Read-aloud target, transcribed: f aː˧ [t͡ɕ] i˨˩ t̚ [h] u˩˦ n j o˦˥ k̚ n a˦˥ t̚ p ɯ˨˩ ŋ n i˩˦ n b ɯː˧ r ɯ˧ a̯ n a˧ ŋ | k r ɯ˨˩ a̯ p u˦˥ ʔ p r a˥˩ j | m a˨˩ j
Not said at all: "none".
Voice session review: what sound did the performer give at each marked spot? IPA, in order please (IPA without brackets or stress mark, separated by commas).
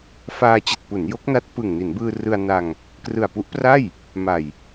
t͡ɕ, p